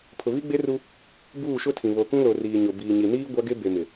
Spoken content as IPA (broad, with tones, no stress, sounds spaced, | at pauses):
pʰ ʊ˨ β i˦ ɡ͡b e˦ r u˦ | b uː˦˨ ʃ ʊ˦ tʰ ĩ˨ β o˨ k ũ˦ l o˨ r iː˨ ɲ ʊ˨ b iː˨ ɲ i˨ n iː˦ ɡʷ a˦ ɡ e˦ b e˨ m ɪ˨